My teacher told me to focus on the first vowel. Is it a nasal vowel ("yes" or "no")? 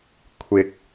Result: no